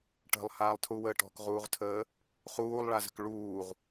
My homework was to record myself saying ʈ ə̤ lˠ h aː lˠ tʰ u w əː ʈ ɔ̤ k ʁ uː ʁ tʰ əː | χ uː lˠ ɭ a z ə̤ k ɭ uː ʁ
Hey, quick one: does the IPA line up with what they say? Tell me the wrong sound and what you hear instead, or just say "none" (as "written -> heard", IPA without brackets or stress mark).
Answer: none